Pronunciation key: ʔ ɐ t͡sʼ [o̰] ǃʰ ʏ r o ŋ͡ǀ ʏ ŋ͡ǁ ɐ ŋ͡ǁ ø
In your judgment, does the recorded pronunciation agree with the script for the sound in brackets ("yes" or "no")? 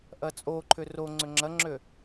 no